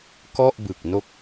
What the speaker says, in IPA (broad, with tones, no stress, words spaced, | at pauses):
kɔ˥˩ʔ bɯ˨˩k̚no˥˩k̚